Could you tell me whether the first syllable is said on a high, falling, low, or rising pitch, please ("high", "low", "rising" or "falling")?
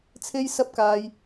high